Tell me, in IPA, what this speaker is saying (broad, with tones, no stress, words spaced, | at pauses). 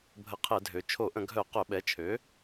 bʱə˧˩˧qʰɛ˧˩˧dʱø˩˧ t͡ʃʰo˧˩˧ʔə̃˧˩˧ɡʱœ˧˩˧ qœ˧˩˧ɓɛ˩˥t͡ʃʰø˩˥